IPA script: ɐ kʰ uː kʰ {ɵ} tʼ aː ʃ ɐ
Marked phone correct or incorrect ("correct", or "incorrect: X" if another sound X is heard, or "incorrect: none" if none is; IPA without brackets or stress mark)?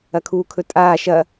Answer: correct